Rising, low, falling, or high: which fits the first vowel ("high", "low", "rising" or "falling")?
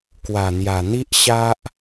low